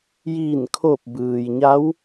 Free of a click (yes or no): yes